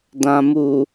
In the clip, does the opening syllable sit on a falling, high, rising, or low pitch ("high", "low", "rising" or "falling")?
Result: low